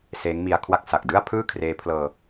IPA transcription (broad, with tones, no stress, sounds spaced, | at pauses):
s eː˦˥ ŋ m i˧ a̯ kʰ w a˥˩ k̚ s a˨˩ k̚ d ɯ˥˩ a̯ pʰ ɯː˥˩ kʰ r eː˦˥ pʰ l ɤː˧